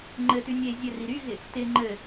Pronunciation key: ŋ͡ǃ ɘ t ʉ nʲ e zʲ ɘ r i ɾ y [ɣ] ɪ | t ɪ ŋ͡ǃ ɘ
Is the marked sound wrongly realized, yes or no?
no